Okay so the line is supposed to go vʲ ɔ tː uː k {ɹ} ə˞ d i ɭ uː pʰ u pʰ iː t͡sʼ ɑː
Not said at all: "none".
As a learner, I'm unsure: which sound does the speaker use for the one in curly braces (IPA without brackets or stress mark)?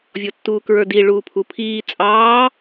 ɹ